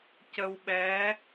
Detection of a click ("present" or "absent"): absent